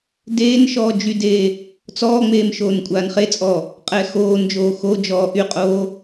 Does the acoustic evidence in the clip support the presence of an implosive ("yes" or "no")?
no